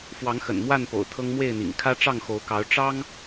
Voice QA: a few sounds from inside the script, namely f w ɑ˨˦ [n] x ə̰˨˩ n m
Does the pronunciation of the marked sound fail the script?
yes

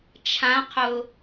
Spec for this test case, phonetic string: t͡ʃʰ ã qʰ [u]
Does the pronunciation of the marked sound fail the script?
yes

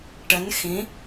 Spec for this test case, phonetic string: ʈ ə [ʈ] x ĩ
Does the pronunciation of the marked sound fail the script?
yes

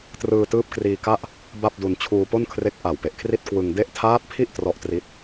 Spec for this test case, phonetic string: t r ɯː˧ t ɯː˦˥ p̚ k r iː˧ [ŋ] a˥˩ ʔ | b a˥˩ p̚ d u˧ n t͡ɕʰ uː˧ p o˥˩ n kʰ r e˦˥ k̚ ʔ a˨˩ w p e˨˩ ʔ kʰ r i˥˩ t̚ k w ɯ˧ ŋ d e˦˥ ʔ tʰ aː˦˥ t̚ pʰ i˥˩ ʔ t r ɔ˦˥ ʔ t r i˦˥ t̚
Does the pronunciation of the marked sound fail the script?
yes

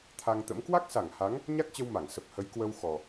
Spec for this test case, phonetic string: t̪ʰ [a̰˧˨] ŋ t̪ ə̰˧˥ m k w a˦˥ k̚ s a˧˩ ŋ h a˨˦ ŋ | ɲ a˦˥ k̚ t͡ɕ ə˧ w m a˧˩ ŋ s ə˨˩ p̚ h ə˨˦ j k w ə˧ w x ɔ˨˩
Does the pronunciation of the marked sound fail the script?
yes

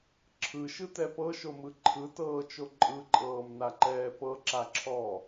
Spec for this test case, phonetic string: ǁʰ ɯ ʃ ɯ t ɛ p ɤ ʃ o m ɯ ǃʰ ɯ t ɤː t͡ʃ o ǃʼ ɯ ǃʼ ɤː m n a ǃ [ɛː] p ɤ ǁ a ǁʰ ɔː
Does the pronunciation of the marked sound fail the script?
no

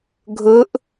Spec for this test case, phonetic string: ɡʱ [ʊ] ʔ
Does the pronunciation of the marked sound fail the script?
no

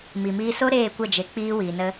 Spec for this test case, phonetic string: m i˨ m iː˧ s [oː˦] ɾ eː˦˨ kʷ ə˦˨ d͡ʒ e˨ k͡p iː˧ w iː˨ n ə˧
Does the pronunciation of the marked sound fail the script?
yes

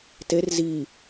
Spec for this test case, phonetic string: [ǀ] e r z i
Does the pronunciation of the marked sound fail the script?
yes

